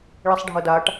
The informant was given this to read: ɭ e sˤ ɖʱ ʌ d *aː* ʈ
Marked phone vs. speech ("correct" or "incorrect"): correct